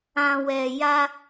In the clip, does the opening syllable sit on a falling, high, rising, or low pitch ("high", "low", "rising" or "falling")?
low